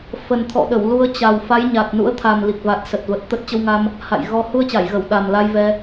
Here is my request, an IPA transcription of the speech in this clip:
f ə˨˩ n t̪ʰ ɔ̰˧˨ ɗ ə˧˩ w l u˧ ə̯ t͡ɕ a˨˩ w f a˨˦ j ɲ a˨˩ t̚ n ṵ˧˥ ə̯ t̪ʰ a˨˩ m l i˨˩ k̚ v a˨˩ t̚ s ə˨˩ t̚ v ə˨˩ t̚ t̪ ə˦˥ t̚ t͡ɕ ə˧ w ŋ a˧ m | h a̰˧˨ j ɣ ɔ˧ h u˧ ə̯ t͡ɕ a˧˩ j ɣ ə˧˩ w ɗ a˨˩ m l a˧ j v ɛ˧

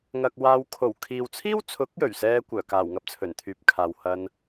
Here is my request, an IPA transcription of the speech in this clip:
ŋ ɐ˨ k̚ w aː˨˧ w kʰ o˨˩ w kʰ iː˨ w t͡sʰ iː˥ w t͡sʰ ʊ˨˥ k̚ j ɵ˨˩ ɥ s ɛː˥ kʷ œː˨˩ k aː˨˩ w ŋ ɐ˧ p̚ t͡sʰ ɵ˨˩ n t̪ʰ yː˨˥ p̚ kʰ aː˨ w h ɐ˧ n

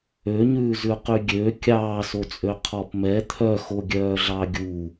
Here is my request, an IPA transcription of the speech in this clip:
ø ɲ ʉː z ʉ q y ɡʲ ø kʲ ɑː s o t͡sʼ ø qʰ ɔ p m ɛ t̪ʰ œ x o ɡʲ œː ɮ ɑ ɡʲ u

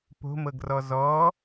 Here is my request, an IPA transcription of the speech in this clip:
p o̤ m ɤ ɡ r ɔ z ɔ

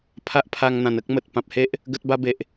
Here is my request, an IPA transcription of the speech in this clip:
pʰ a˦ ʔ pʰ a˧ ŋ n̪ ã˨˩ n ə˦ k̚ m ə˨ t̚ p ã˨ p̚ h e˦ ʔ | ɡ ə˦ t̚ b a˦ b e˨ ʔ

